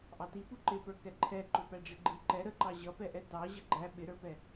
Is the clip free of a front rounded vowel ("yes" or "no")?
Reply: yes